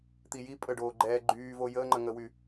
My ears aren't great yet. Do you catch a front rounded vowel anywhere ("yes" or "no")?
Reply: yes